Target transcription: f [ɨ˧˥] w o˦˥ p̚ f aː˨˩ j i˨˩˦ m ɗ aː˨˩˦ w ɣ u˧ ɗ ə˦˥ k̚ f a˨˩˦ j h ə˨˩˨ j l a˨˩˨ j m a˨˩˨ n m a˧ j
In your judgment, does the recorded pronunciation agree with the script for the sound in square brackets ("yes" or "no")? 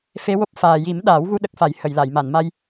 no